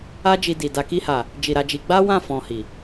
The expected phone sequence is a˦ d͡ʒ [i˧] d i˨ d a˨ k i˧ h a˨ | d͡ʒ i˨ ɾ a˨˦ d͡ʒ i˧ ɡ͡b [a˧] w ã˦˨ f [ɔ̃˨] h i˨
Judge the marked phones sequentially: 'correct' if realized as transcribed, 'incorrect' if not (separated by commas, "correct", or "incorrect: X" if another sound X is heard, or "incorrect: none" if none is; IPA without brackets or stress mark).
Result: correct, incorrect: a˦, incorrect: ɔ̃˧